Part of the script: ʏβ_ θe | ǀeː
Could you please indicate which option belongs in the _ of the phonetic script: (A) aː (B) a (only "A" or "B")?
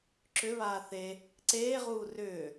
A